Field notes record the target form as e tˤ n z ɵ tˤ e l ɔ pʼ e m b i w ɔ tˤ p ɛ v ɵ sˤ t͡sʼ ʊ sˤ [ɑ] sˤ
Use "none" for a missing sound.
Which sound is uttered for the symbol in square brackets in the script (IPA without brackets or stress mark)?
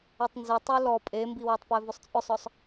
ɔ